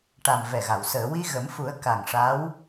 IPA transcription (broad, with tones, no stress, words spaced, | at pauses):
ʈa˨˩m vɛ˨˩ɣa˨˩˨w səː˨˩˨wi˧ ɣə˨˩˦mfu˨˩˦ə̯ ka˨˩ŋʂa˧˥w